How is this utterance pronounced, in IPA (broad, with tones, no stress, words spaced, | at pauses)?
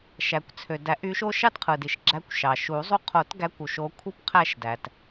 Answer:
ʃæ˩kʷt͡sʰø˩dæ˨˩˦ʔ y˨˦ʃo˦ ʃɑ˦tqʰɯ˩di˩ʃɡ͡ǁæ˨˦kʷ ʃɑ˩ʃu˨˩˦zˤu˦˨ qʰo˨˩˦tɡæ˨˦kʷu˩ʃ o˨˦kʷʰɯ˦pqʰæ˦˨ʃdæ˩t